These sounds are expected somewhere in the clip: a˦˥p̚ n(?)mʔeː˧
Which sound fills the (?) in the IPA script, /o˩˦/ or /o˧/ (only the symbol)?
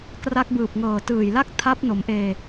o˩˦